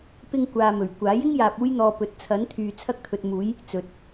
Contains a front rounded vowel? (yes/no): yes